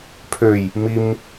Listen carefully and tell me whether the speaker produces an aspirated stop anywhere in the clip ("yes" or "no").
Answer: yes